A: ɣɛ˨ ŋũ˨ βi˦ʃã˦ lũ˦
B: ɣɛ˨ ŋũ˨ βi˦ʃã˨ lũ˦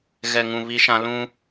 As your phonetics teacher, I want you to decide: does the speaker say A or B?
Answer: A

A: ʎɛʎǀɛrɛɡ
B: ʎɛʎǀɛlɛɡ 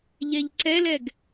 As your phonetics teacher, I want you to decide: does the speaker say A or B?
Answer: B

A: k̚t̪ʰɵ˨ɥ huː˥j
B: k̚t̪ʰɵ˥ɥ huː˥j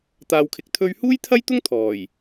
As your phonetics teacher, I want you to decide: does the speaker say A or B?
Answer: B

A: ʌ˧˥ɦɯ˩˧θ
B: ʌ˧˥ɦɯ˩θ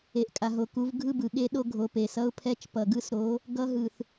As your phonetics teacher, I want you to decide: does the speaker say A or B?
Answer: B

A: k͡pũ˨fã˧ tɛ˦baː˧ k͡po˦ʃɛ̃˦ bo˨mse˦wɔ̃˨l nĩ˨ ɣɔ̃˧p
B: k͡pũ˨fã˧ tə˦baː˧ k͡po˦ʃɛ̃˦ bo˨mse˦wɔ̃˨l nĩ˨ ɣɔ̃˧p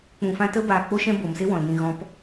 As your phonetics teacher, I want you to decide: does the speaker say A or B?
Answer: B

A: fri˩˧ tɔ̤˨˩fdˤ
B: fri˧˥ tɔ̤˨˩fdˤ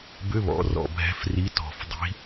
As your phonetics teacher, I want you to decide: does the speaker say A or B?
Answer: B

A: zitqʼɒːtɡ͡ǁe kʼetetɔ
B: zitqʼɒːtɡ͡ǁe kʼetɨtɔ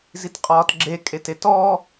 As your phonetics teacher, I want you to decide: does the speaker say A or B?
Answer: A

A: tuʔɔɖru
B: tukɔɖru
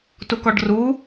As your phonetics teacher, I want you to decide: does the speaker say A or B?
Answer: B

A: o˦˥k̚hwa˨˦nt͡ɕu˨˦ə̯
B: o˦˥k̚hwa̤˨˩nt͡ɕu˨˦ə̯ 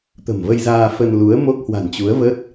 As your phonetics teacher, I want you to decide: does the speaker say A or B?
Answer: B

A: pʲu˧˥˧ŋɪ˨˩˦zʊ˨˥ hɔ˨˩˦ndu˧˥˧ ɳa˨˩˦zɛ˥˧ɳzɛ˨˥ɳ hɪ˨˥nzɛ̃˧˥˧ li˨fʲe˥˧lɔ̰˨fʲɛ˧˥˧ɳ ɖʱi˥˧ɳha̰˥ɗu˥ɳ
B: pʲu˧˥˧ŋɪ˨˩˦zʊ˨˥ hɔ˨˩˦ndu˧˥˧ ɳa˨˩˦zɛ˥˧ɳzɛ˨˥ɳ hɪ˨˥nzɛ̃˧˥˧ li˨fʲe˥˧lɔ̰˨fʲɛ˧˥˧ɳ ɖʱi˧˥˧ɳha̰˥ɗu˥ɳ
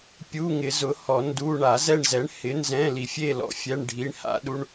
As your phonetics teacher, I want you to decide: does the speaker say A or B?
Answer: B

